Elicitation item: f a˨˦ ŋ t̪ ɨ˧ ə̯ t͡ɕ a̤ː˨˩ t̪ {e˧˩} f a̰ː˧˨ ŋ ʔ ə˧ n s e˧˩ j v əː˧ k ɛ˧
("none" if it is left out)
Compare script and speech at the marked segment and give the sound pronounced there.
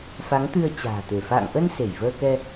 e˧˩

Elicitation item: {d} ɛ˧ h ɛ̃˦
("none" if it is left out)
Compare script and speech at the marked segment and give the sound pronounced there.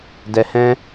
d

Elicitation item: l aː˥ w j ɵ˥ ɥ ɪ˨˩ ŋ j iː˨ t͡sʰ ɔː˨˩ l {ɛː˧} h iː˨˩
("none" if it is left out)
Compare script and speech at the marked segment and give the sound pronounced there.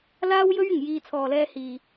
ɛː˧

